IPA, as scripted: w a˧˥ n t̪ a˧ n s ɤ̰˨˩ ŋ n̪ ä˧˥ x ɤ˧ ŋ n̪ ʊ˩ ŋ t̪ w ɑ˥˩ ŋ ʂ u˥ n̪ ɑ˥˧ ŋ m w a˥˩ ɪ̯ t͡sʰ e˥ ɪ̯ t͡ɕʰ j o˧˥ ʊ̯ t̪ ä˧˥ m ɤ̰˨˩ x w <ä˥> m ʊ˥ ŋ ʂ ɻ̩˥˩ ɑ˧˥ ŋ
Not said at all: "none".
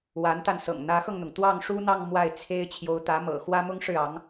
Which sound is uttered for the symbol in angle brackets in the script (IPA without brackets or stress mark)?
ä˥